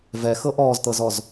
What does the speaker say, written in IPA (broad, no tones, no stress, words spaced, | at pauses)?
vɛxɤ ʔɔːzt̪ɤzɔz